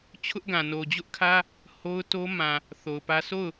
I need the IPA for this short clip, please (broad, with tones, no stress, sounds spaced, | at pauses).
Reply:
t͡ɕʰ ʊ˦ ʔ ɡ ã˨ n o˨ d͡ʑ ʊ˦ ʔ kʰ ä˦ | h o˦ ʊ̯ t o˦ m ã˨ | θ o˨ ʊ̯ p ä˦ s o˦˨ ʊ̯